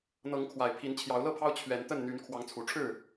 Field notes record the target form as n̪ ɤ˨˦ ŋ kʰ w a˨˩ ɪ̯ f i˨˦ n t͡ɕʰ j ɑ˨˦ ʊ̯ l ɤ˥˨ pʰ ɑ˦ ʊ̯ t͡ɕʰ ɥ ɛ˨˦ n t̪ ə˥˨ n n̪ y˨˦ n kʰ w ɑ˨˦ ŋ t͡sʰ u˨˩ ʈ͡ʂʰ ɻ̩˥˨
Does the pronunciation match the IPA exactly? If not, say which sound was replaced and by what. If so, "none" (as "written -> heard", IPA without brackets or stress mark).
f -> pʰ